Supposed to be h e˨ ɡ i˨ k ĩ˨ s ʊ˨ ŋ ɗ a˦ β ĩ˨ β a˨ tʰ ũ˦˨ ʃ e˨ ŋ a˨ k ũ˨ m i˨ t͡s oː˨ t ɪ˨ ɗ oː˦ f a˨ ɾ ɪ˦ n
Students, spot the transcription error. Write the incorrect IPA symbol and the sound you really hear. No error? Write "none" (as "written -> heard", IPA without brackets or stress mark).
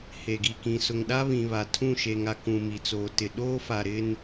none